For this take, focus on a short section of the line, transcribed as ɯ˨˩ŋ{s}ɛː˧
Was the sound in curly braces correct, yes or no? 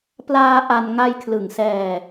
yes